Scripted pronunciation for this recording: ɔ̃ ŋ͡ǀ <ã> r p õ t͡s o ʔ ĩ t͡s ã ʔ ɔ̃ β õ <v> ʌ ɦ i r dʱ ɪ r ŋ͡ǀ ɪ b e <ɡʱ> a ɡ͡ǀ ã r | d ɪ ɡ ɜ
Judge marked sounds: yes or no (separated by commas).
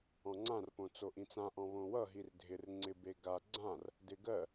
yes, no, no